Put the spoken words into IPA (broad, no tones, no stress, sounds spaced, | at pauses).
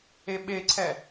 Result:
e ɓ e ǀʰ ɛ